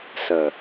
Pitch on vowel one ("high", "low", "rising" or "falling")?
low